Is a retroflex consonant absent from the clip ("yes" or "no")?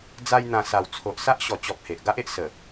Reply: yes